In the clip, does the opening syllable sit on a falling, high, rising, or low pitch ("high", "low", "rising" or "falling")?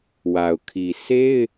low